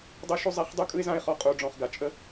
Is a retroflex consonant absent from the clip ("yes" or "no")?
no